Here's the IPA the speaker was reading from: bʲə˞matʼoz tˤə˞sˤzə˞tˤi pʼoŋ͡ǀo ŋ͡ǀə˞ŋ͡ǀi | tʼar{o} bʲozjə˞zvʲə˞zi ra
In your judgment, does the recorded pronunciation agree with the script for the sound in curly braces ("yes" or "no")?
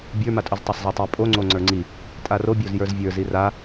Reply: yes